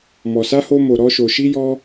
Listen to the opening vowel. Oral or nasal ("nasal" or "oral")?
oral